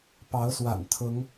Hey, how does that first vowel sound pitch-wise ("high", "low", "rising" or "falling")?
rising